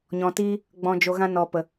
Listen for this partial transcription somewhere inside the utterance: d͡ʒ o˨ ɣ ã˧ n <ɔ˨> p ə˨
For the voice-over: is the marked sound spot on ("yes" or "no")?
yes